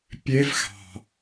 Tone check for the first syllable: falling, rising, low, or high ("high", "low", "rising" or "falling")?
high